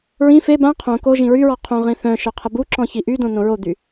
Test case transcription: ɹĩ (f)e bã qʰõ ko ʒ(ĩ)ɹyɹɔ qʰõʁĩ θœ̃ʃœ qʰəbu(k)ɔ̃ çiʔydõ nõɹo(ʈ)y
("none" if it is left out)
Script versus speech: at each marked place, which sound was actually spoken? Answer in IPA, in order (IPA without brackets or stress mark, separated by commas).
f, ĩ, ǁ, d̪